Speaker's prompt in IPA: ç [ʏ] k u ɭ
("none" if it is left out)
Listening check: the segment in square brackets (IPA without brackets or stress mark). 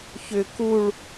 ʏ